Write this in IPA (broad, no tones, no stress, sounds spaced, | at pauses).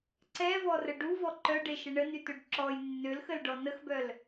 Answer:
ǀ ɛ v ɔ r ə ɖ u v ɔ ǃ œ ɖ e ʃ ə ɳ ə n y t ø ɖ ǁ ɔ j nː ø l x ə l ɖ ɔ n ə x b œ l